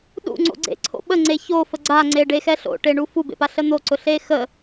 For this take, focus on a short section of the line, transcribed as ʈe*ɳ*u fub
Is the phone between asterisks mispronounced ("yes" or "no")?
no